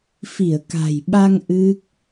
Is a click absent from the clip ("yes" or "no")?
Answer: yes